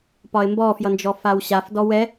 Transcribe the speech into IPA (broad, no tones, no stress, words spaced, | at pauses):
pɒɪ̯mbɔfjʌnd͡ʒɔ fawɕaf dɔwɛ